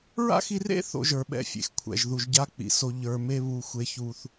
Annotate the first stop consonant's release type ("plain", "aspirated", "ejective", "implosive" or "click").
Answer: implosive